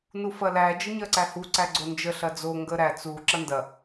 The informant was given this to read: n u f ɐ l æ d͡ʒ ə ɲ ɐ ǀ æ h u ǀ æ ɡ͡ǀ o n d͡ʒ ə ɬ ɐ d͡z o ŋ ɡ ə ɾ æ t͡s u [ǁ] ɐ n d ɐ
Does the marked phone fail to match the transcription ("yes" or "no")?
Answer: no